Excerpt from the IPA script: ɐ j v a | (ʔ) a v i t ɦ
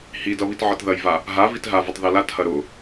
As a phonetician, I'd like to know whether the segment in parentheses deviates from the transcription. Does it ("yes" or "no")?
yes